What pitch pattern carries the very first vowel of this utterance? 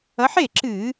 rising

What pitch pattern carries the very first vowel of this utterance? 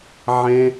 high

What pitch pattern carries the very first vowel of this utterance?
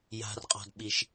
low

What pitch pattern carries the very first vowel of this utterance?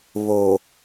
low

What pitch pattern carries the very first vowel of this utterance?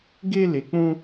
high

